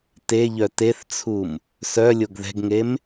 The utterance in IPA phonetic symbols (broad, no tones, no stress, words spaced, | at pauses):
teʎœ teθt͡sʰum | sœlʲoɡ ðɛ̤ɡŋem